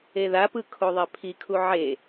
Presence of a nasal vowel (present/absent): absent